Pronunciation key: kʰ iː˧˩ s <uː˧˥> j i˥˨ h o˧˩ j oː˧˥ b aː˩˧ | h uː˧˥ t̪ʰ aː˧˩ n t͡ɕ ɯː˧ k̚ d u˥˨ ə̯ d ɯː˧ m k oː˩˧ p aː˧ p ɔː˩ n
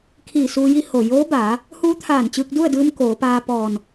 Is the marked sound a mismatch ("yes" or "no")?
yes